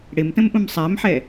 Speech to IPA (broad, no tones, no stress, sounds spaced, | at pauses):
ɽ ɪ m t ə̃ m ʔ ũ m sˤ æ m ħ ɛ